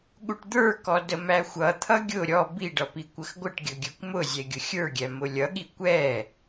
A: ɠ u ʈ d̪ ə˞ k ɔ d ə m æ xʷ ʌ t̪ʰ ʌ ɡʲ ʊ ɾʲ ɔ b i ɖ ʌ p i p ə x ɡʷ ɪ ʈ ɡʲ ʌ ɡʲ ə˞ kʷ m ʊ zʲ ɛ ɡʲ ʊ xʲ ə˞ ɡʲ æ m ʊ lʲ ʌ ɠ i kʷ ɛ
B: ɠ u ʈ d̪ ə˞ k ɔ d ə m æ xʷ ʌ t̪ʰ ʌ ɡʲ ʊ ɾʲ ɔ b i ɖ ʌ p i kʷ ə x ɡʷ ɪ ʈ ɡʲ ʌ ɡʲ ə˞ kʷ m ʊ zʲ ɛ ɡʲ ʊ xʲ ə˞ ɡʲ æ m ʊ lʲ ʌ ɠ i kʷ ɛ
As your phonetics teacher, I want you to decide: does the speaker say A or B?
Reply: B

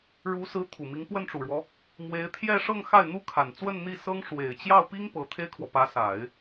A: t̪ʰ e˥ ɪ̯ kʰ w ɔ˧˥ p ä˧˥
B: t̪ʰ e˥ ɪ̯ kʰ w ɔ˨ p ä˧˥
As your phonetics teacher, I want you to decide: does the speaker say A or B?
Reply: B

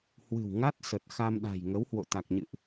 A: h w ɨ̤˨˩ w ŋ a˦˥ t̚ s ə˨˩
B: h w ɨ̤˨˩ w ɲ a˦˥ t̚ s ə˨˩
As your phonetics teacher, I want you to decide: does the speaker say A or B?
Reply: A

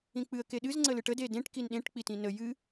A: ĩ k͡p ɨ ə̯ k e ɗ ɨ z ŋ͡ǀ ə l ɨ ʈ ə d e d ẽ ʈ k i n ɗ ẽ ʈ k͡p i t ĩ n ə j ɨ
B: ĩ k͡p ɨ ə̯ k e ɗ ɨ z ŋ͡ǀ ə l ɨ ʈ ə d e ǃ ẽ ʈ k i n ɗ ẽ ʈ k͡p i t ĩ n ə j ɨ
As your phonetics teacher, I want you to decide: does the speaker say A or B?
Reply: A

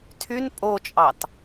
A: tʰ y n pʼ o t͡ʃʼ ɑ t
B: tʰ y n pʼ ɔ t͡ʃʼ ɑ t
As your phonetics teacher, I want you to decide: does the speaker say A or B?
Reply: A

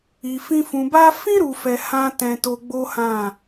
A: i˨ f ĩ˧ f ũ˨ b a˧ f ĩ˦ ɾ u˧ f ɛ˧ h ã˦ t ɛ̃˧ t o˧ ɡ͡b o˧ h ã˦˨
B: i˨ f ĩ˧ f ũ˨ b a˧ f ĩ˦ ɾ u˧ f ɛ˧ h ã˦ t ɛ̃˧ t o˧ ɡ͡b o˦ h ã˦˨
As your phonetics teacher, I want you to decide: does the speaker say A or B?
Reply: B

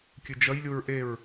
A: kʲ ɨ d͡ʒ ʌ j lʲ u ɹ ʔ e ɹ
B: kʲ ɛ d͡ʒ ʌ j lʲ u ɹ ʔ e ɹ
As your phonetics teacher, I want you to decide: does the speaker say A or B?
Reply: A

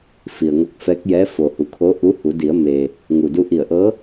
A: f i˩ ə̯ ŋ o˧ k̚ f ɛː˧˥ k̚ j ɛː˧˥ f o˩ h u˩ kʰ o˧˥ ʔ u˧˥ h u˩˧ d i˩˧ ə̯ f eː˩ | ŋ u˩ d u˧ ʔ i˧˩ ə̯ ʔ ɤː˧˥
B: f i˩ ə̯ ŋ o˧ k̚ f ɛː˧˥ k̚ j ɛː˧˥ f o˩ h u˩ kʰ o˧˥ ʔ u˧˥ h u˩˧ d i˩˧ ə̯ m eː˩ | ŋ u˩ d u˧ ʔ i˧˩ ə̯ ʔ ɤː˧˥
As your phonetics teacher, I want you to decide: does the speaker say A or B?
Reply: B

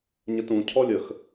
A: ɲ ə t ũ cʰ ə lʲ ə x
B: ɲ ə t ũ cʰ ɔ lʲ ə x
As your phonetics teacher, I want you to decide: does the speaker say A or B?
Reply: B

